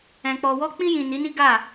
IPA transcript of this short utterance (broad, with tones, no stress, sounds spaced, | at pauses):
ɛ̃˨ k͡p ɔ˨ w ɔ˧ k͡p ĩ˧ j ĩ˨ n i˨˦ n i˦ ɡ a˦˨